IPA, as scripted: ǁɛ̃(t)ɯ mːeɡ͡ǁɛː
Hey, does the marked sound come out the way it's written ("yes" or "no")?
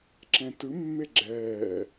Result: yes